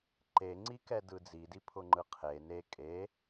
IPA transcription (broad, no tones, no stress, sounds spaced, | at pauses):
ǃ e ŋ͡ǀ i k ɛ d ɯ d͡z i d i pʰ ʊ ŋ͡ǃ ɯ qʰ e n e kʼ e